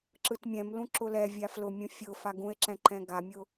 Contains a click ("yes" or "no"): yes